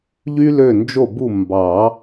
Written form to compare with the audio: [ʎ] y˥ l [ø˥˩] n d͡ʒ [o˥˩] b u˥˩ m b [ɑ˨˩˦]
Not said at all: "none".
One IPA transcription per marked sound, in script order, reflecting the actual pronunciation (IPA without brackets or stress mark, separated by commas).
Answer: ʎ, ø˥˩, o˥˩, ɑ˨˩˦